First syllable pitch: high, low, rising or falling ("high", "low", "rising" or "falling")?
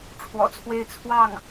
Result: low